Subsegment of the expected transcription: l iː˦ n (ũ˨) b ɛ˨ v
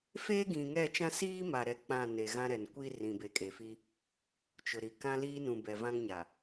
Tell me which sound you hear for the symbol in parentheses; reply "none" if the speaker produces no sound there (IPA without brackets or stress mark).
ũ˨